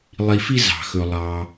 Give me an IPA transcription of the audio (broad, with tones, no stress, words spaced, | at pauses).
lˠi˨fi˦zɑ̤˩xɵ˩ lˠɑ˩